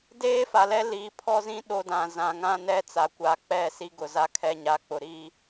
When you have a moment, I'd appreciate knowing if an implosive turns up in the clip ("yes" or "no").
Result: yes